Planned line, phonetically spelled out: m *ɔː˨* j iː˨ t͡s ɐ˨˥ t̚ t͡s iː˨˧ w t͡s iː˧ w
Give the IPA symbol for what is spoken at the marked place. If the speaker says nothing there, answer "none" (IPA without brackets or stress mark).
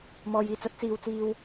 ɔː˨